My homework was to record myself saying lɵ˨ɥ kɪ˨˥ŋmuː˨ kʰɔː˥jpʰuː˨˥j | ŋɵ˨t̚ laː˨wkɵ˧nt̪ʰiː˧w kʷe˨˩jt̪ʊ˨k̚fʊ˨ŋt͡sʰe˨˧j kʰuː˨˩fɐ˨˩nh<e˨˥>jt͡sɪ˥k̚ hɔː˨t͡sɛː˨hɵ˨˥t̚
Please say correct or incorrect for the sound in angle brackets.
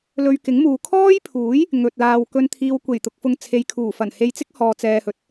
incorrect